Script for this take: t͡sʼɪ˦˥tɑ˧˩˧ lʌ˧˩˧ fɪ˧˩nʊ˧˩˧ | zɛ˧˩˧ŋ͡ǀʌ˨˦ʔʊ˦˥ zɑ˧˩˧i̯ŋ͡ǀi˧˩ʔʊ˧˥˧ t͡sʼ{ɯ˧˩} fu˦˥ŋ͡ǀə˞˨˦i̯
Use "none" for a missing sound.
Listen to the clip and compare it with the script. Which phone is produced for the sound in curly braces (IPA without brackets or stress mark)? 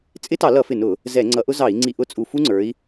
u˧˩